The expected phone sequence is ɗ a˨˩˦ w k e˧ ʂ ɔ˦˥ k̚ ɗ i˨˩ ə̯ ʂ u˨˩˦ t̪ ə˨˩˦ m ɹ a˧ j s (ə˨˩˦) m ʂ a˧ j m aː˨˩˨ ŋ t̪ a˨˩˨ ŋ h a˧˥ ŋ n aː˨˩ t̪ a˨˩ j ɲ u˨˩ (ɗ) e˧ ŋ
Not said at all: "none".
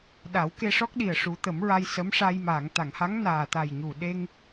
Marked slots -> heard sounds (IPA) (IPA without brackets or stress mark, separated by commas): ə˧˥, ɗ